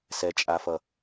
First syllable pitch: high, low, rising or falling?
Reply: low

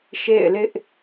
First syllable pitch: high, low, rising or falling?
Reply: falling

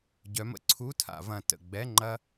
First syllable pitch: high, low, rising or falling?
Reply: rising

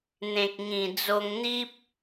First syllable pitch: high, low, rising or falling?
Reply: low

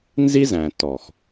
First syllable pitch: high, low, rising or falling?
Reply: high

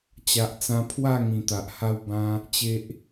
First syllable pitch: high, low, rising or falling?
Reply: low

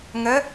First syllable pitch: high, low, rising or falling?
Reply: rising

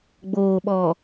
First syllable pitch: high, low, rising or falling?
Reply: low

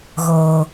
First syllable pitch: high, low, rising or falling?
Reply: low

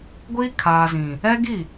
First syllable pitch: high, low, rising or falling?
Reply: high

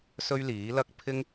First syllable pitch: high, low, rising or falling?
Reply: high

